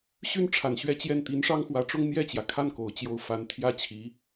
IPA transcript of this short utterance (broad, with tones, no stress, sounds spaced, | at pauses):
ɕ y˥ n ʈ͡ʂʰ a˨˩ n ɕ ɥ ɛ˥˧ t͡ɕ j ɛ˥˩ n t̪ i˧˥ n ʂ ɑ˥ ŋ x w ä˧˥ ʈ͡ʂ ʊ˥ ŋ n̪ j ɛ˥˩ t͡ɕ j ä˩ kʰ a˥˩ n k o˨˩ ʊ̯ t͡ɕ j o˥˩ ʊ̯ f a˧˥ n t̪ʰ j ä˥ t͡ɕʰ i˧˥